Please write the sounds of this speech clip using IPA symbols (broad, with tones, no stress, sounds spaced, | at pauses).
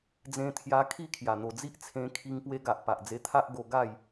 d͡z ẽ˧ t̪ʰ j a˧ kʰ i˥˧ kʰ j a˨˩ n̪ o˨˩ d͡z i˦ ʔ t͡sʰ ẽ˧ kʰ i˧ ŋ p w e˧ ɡ a˨ ʔ p a˨ ʔ d͡z e˧ t̪ʰ a˦ ʔ ɡ o˧ ɡ a˥˧ j